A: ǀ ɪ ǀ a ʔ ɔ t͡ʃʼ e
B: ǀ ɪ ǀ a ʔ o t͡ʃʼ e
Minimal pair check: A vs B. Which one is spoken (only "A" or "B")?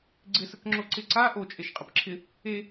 B